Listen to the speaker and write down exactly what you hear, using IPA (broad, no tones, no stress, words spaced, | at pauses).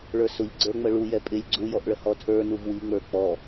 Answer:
ɭə˞sʊʎ ɡ͡ǀə˞ŋ͡məɭujɛ pʼɪlʲ ɡ͡ǀujɔʔɭə hɔtʰə˞nuv wiŋ͡mə˞ k͡pɔ